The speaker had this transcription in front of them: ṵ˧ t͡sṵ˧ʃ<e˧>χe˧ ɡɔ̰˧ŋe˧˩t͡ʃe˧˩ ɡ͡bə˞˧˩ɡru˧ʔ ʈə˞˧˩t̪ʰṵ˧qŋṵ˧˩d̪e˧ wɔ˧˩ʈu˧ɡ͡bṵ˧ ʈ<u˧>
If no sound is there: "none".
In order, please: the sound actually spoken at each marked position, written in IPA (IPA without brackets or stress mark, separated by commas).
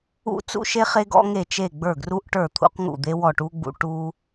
e˧, u˧